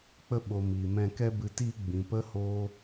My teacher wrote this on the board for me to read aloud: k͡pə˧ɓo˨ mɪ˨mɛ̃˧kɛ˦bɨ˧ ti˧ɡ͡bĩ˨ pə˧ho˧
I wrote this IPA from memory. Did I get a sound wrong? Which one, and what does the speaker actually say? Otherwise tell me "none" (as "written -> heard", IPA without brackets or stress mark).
ɪ˨ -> i˨